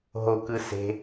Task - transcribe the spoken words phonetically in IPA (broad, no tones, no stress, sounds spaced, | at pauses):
ɦ o k ɯ s e̤